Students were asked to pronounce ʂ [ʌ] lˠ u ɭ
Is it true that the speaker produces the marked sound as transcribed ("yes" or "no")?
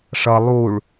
yes